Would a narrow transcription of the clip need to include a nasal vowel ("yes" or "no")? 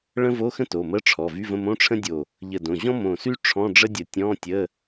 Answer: yes